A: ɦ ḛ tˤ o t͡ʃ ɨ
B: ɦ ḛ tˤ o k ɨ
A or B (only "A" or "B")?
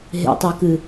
B